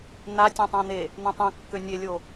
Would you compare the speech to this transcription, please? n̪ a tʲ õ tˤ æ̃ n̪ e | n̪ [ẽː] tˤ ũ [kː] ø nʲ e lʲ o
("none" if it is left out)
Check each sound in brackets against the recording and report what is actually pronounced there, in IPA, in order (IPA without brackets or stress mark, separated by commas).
ẽ, kː